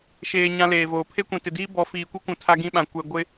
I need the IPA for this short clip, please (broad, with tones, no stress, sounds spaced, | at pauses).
ʃ eː˨ ɲ ã˦ l eː˨ v oː˨ pʰ e˦ kʷ ĩ˨ t ɪ˨ d iː˦ b ɔ˨˦ f iː˨ kʷ i˦ kʷ ũ˨ tʰ a˦ ɡ ĩ˦ ɓ ã˨ kʷ ɛ˨ ɡʷ ɪ˦